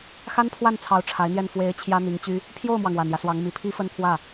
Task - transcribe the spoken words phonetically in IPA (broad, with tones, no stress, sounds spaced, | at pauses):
x a˥ n pʰ w a˥˩ n t͡sʰ ɑ˧˥ ʊ̯ ʈ͡ʂʰ a˧˥ ɪ̯ n̪ j ɛ˥˩ n f w e˧˥ ɪ̯ t͡ɕʰ j ä˥ n̪ i˧˥ ŋ t͡ɕ y˥ | pʰ j o˥˩ ʊ̯ m w ɑ˩ ŋ w a˨˩ n j ä˦ s w ɑ˧˥ ŋ m i˨˩ pʰ i˥ f ə˥ n pʰ w ä˥˩